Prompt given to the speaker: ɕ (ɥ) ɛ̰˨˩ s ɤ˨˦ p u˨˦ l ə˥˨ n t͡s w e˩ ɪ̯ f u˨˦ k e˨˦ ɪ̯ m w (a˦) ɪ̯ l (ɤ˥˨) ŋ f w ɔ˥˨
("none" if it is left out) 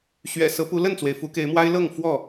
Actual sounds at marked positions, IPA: ɥ, a˦, ɤ˥˨

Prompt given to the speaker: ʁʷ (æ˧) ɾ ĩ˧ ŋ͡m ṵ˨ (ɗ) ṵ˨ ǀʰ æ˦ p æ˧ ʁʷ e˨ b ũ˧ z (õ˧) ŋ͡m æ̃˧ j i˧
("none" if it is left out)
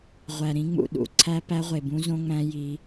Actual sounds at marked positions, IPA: æ˨, ɗ, õ˧

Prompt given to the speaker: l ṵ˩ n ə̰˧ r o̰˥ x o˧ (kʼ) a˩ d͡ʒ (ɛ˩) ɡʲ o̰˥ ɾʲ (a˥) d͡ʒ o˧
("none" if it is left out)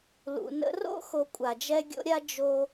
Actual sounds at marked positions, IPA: kʷʼ, ɛ˥, a˥

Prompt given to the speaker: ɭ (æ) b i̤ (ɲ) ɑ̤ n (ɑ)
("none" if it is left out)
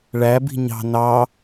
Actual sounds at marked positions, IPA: æ, ɲ, ɑ

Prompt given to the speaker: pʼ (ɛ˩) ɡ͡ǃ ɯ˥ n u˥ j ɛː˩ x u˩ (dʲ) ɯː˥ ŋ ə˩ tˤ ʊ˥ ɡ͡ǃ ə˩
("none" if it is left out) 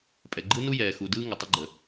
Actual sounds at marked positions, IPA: ɛ˩, d

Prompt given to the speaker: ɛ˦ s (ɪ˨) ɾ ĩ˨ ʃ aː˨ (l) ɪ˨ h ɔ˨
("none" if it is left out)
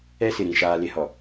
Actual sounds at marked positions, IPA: ɪ˨, l

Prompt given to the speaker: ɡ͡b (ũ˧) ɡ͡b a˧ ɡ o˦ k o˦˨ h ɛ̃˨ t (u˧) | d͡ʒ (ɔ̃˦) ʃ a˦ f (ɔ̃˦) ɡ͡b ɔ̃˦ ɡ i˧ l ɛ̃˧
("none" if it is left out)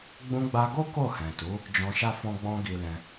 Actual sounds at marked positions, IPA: ũ˧, u˨˦, ɔ̃˧, ɔ̃˦

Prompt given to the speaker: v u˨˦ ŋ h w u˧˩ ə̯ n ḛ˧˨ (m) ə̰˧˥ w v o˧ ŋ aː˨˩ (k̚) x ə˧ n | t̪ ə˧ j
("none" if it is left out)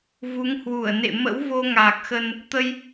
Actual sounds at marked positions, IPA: m, k̚

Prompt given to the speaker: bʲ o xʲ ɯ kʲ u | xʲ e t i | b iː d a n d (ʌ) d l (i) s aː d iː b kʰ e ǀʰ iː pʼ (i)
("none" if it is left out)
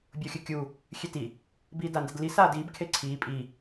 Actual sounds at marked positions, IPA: ʌ, i, i

